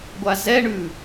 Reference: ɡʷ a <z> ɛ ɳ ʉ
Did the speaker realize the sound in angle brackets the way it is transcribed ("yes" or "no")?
yes